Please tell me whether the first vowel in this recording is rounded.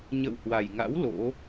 no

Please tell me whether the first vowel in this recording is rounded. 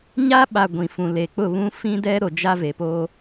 no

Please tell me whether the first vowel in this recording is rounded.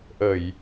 no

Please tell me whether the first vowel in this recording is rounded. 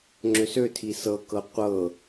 yes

